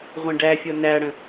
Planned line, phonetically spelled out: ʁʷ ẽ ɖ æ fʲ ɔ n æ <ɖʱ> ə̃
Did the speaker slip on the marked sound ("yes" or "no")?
yes